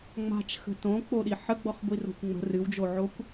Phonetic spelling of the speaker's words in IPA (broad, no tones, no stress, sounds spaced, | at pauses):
ŋ͡m a̤ t͡ʃ x ə̤ t õ k͡p o ɗ i ħ ə ɡ͡b ɔ χ ɡʷ i r o̤ kʷ ŋ͡m ə̤ r ɨ w d͡ʒ o ʕ o kʷ